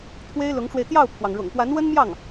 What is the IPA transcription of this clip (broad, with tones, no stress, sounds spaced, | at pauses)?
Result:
t̪ʰ w e˥ ɪ̯ l ʊ˧˥ ŋ ʈ͡ʂ w e˧ ɪ̯ t̪ j ɑ˥˩ ʊ̯ pʰ w ɑ˩ ŋ ɻ ʊ̰˨˩ ŋ p w a˧˥ n w ə˥ n m j ɑ˥˩ ŋ